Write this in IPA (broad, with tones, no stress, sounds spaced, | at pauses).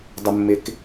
dˤ ʊ˩ mː ɪ˩ k